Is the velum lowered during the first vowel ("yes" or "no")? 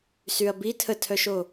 no